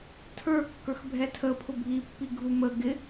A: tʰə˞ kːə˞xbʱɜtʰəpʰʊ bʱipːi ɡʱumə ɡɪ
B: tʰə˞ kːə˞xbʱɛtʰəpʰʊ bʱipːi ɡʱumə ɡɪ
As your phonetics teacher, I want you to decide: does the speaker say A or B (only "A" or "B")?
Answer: B